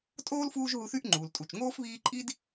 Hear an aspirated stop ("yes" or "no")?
no